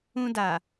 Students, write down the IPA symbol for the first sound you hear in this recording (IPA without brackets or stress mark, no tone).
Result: ũ